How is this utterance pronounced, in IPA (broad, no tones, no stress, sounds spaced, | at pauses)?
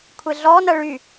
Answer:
kʷʰ e ɮ ɔ n ɐ ɭ y